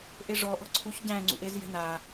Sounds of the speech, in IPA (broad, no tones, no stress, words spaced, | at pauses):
ʔeʐɔ ʔɔ̤ǀʰuç ɟæ̃ŋ͡ǀṵʔez jɛ̤na